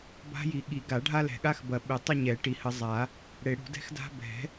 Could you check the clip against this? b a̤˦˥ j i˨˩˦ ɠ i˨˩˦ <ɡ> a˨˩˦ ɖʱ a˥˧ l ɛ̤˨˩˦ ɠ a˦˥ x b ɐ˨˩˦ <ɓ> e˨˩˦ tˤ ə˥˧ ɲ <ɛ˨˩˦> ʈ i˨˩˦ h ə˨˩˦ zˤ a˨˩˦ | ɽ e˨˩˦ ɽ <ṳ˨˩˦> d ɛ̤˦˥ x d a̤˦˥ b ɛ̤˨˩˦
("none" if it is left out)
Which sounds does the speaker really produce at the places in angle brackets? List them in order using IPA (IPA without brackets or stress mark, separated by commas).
ɡ, ɓ, ɛ˨˩˦, ṳ˨˩˦